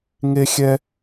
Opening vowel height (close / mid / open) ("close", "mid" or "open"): mid